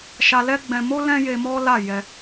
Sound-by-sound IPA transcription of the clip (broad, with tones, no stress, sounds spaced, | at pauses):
ʃ a˧ l ɛ˦ ɡ͡b ɛ̃˧ m o˦ l ɛ̃˦ j e˧ m ɔ˦ l a˦˨ j ɛ˧